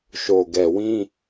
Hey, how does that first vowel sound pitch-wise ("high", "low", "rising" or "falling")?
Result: low